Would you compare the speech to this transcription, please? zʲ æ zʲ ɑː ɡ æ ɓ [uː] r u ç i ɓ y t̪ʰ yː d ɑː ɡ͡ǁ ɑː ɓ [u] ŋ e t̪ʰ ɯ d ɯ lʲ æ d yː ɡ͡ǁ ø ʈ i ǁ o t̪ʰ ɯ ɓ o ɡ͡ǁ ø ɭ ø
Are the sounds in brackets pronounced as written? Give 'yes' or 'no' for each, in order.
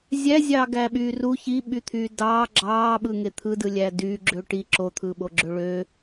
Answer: no, no

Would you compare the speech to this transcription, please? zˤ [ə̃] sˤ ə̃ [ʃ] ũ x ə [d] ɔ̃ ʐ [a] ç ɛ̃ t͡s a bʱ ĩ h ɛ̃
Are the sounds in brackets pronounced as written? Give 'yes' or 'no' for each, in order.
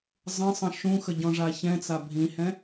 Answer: yes, yes, no, yes

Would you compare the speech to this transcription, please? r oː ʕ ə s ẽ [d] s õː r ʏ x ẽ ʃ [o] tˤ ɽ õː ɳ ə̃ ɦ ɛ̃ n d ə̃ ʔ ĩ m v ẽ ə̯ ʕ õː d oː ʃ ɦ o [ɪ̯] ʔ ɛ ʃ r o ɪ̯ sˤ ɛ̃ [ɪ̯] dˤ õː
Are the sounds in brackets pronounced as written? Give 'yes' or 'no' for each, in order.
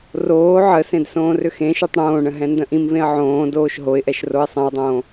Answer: yes, yes, yes, no

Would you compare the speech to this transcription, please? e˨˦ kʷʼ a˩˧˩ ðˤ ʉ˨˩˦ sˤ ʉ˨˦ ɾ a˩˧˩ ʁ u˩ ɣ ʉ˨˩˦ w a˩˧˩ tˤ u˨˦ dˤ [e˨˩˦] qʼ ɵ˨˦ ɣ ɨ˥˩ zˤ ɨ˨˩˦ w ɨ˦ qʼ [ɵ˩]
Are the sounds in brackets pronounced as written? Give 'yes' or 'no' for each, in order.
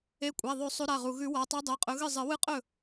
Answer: no, no

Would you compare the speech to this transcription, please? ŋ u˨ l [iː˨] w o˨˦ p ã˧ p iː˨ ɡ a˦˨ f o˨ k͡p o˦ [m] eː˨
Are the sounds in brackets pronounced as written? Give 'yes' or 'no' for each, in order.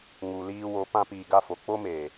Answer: no, yes

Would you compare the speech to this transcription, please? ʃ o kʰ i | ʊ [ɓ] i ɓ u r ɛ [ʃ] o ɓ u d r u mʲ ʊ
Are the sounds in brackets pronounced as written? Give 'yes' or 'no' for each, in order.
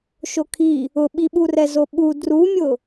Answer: yes, no

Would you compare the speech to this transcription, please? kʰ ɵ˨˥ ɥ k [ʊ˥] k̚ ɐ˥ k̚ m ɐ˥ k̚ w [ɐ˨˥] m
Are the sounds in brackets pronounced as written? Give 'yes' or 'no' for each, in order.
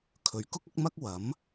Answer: yes, yes

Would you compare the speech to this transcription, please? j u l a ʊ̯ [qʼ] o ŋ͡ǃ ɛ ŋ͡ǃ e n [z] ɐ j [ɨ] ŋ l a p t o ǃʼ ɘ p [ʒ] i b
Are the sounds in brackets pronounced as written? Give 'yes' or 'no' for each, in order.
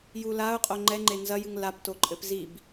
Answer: yes, yes, yes, no

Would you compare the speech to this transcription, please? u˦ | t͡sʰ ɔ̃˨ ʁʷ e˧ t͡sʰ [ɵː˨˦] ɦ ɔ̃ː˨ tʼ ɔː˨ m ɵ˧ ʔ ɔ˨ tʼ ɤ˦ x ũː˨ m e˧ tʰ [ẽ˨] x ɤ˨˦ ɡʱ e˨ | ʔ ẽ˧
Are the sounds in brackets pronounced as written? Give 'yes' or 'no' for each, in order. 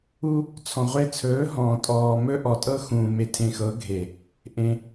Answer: yes, no

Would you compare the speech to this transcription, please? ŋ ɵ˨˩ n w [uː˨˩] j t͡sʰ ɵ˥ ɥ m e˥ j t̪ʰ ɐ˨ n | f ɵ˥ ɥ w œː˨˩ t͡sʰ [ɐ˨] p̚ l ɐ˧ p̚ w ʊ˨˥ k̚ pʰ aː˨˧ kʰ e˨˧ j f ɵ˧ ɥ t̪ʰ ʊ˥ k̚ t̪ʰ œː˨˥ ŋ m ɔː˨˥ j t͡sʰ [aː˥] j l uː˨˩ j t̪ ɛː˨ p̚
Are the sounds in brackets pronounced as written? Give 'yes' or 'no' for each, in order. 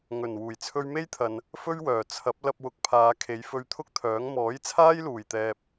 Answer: yes, no, yes

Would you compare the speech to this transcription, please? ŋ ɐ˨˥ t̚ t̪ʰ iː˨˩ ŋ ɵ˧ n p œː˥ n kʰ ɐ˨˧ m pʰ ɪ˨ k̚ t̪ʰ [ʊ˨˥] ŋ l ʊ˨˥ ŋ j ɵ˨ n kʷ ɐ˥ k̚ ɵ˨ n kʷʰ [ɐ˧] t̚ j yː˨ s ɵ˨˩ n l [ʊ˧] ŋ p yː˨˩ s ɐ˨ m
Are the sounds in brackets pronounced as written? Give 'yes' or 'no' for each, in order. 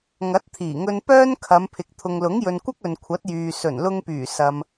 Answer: no, no, yes

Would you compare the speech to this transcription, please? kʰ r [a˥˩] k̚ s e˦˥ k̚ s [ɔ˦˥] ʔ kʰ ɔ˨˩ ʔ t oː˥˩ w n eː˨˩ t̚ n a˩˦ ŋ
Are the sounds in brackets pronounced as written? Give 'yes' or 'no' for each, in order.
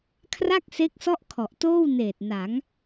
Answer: yes, no

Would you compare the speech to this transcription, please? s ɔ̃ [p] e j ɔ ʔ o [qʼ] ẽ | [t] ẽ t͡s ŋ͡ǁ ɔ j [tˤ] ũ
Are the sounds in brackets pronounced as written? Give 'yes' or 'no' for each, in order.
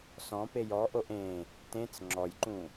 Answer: yes, no, yes, no

